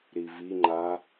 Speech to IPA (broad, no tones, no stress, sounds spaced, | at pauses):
ɾ i v i ŋ͡ǃ a